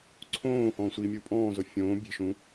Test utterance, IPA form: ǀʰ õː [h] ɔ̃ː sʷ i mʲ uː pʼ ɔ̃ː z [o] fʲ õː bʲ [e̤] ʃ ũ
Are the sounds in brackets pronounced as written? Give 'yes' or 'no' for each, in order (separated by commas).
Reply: yes, yes, yes